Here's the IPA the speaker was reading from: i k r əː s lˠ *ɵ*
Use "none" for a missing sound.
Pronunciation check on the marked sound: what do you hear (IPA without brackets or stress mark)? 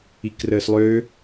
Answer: ø